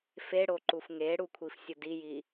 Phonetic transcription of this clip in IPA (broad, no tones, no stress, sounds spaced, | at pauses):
f e ɽ o ǃ u f ŋ e ɽ u kʷʰ i f sʲ ʊ d i j i